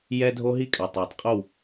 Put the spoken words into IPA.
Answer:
j ɛː˦ dʱ o˦ ɦ i˦ kʼ a˨ tˤ ɛː˨ tˤ qʼ o˦˨ w

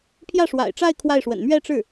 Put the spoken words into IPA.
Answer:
pʰ j ä˥˩ ʂ w a̰˨˩ ɪ̯ ʈ͡ʂ a˥˧ ɪ̯ kʰ w a˥˩ ɪ̯ ʂ w ə̰˨˩ n m ɥ ɛ˥˧ ʈ͡ʂ ɻ̩˥˩

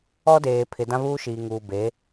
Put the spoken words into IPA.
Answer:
ɔ˦ d eː˨ pʰ ɪ˨ d ã˦ β uː˦ ʃ iː˨ ŋ uː˨ b e˨˦

